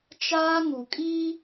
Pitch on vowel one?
high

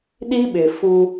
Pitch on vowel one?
high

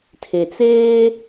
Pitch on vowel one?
low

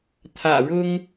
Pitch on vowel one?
low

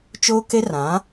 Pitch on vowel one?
high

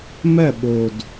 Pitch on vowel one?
falling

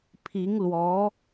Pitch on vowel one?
rising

